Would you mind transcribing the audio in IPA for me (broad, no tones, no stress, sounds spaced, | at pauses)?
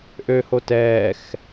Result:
ʔ ø h o t ɛː x